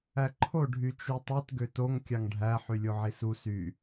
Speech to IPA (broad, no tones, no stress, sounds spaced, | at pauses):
æ ǃʰ o ɖʱ y t͡ʃ u tˤ ɯ t ɡ ø t o ŋ kʲ ɑ ŋ ɖʱ æ ħ y lʲ o ʕ i s u s y